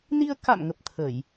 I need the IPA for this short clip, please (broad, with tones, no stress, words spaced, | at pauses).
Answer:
ni˧ə̯ka̰˧˨mŋə˨˩p̚ t̪ʰə˧˩˨j